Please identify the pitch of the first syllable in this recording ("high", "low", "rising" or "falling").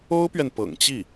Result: high